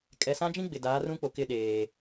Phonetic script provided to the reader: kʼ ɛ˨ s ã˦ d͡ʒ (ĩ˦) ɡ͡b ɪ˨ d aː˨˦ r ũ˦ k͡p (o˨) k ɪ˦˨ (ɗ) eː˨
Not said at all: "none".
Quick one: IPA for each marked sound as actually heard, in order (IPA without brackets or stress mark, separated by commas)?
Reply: ĩ˦, o˨, ɗ